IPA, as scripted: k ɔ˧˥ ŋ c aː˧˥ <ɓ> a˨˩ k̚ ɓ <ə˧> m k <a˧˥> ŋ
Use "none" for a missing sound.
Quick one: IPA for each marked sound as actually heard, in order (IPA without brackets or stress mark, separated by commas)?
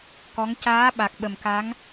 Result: ɓ, ə˨˩, a˧˥